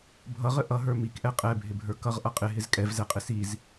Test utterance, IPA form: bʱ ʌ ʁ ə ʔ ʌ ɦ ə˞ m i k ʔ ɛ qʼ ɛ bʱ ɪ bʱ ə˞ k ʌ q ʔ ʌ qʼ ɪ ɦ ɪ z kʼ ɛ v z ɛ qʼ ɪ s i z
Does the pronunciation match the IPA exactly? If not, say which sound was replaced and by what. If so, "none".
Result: q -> ʁ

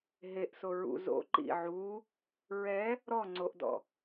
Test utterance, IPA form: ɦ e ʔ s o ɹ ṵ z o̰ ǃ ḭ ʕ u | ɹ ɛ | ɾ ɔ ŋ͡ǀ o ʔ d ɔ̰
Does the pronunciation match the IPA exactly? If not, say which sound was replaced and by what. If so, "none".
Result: none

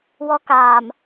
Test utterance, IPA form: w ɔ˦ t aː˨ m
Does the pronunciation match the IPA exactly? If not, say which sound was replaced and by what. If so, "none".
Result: t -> k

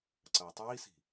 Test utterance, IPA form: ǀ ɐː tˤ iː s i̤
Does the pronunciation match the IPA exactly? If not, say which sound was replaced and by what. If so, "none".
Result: none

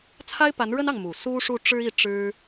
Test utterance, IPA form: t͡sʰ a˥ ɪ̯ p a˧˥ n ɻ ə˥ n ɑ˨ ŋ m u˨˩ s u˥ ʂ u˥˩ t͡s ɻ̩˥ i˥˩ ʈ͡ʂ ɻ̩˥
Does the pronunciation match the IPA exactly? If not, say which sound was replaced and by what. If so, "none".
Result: t͡s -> ʈ͡ʂ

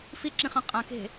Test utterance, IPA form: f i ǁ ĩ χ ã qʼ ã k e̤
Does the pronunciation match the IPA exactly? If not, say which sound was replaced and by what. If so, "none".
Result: none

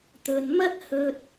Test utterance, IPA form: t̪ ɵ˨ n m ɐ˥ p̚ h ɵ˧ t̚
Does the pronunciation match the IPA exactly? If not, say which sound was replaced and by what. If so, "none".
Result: p̚ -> t̚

